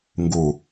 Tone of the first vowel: low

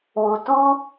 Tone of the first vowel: low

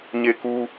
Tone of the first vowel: high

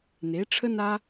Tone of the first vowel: rising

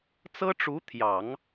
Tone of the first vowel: high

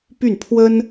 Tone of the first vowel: falling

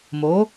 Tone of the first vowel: rising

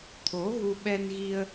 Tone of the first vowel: rising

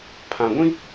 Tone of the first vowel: low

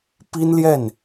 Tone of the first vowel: high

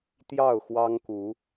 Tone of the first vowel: falling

